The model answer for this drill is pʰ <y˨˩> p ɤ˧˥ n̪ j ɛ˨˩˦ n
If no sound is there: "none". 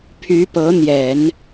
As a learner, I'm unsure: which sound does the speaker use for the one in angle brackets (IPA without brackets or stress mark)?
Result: y˧˥